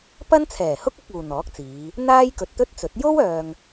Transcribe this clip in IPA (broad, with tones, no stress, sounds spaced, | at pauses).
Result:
p ɐ˥ n t͡sʰ ɛː˨˩ h ʊ˥ k̚ ʊ˨˥ k̚ uː˨ n̪ ɔː˨˥ k̚ t͡s iː˨˧ | n̪ aː˥ j k ɵ˨ t̚ t̪ ɵ˥ t̚ t͡s ɵ˨˥ t̚ j o˥ w œː˨ ŋ